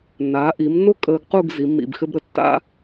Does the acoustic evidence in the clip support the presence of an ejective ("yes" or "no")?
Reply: yes